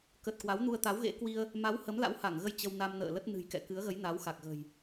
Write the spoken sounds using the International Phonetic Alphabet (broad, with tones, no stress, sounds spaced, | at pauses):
k ə˨˩ t̚ k w a˨˦ w n u˧ ə̯ t̪ a˨˦ w ɣ ḛ˧˥ k w i˧ ə̯ | m a˨˦ w h ə˨˦ m l a̰˧˥ w h a˧˩ ŋ ɣ ə˧ j t͡ɕ ə˧ w n a˧ m n ə̰ː˧˨ l ə˦˥ t̚ n ɨ̤˨˩ j k ɛ̰˧˨ k ɨ˨˦ ə̯ ɣ ə˨˦ j n a˨˦ w x a˨˩ k̚ ɣ ə̤˨˩ j